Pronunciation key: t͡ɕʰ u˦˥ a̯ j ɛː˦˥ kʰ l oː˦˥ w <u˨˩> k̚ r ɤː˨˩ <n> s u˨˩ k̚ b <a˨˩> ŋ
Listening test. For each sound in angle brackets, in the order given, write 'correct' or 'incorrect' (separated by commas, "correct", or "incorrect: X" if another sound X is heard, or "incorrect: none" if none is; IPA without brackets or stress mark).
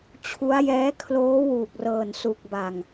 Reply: incorrect: uː˨˩, correct, correct